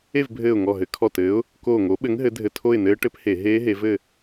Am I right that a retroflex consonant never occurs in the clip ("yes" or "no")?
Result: no